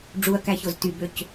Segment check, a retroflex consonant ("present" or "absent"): present